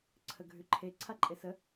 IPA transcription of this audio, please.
ǀʰ ə ɡʱ ʉ ǃʰ e ǀʰ a ǃʼ e s ə

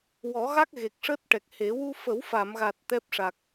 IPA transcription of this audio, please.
w ɔ˨˩˦ ɣ a˦˥ k̚ ɣ e˨˩ k̚ ʂ əː˦˥ t̚ ʈ ɛ˨˩ k̚ h e˨˩˦ w u˧ f ə˨˩˦ w f a˨˩˨ m ɣ a˨˩ t̚ t̪ ɛ˦˥ p̚ ʂ a˨˩ k̚

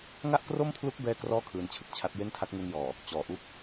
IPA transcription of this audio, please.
ŋ a˥˩ ʔ k r o˥˩ m pʰ l u˦˥ k̚ b ɛː˥˩ k r ɔː˥˩ kʰ ɯː˧ n t͡ɕʰ ɯ˥˩ k̚ t͡ɕʰ a˦˥ t̚ j e˥˩ n tʰ a˦˥ k̚ ŋ u˧ n j ɔː˨˩ | t͡ɕ ɔː˨˩ ʔ u˥˩ k̚

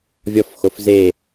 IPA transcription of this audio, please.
vʲ ɔ f x o f z e

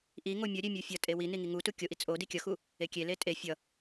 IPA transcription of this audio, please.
ʔ i ŋ o mʲ ʌ ɾʲ e mʲ u fʲ ʌ tʼ e w i n i ŋ i ŋ u t u kʲ o ʔ i t͡sʼ o d i kʲ ʌ x u | e kʲ e l e tʼ e fʲ ʌ

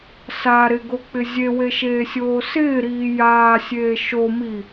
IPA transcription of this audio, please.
s a ɾ ɪ ɡ o k͡p ɪ zʲ e w e ʃ eː sʲ oː s ɪː ɾ iː j aː sʲ eː ʃ o m i

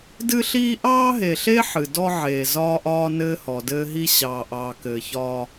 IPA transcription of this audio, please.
d ɨ˦ ɬ iː˦ ʔ ɑː˦ ɦ e˨ ɬ e˦ ħ ɨ˨ d ɔ˦ ʕ eː˨ z ɒː˦ ʔ ɒː˦ n ɘː˦ h ɔ˨ d ɘː˦ ɦ i˦ ɕ ɑː˨ ʔ ɑː˨ k ɘː˨ ç ɒː˦

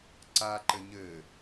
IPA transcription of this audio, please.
ǀ a ǃ ɘ ɲ ɘ

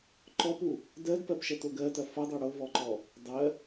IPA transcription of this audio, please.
ǃ ɔ p u | d ɜ d p ɜ p ʃ ɐ t o ɡ ɜ t ɐ f ɐ dˤ o ɽ o v ɔ ǃ ɔ | dˤ ɜ

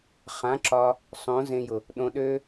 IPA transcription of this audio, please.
χ ã˨˦ ǁ ɒ˧ | sˤ õ˨˦ z ẽ˧ j ʊ˨ | ɗ õ˧ ɗ ø˦

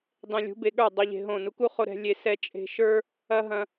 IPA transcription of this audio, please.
dˤ ẽ˧ lʲ ṳ˨˦ b e˧ ɠ ə˞˦˨ dˤ o˦ ʎ e̤˧ ɦ õ˦˨ n u˧ k u˦ χ o˧ ɾ ɛ̤˧ lʲ e˧ s ɛ˧ t͡ʃʼ e̤˧ ʃ ə˞˦ | ɐ˦ ɦ ɐ̃˧

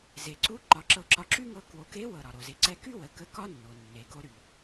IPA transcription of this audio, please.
z e˩ ǀ u˧˥ ǃ ɒ˩˧ ǁ ɤ˧ ǁ ɒ˧ ǁ y˥ ŋ ɤ˧ k w o˩˧ k e˧˥ w ɤ˩ ɾ ɒ˩ ɾ o˩ z e˩˧ ǀ ɛ˧ k y˥ w ə˩˧ k ə˧˥ k ɒ˥ nː o˩ nː e˩ ɡ o˧ ɾ y˩

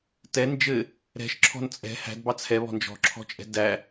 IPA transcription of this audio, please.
t ɛ n d͡ʒ ɘ | ɾ ɛ̤ ʃ ǁʰ ɔ̤ n t͡sʼ ɛ̤ h æ̤ d b ɑ t͡sʰ ɛ β ɔ̤ n d͡ʒ ɔ̤ ǁʰ ɔ̤ t͡ʃʼ ɛ̤ d æ

